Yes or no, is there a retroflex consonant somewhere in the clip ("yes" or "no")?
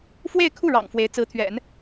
yes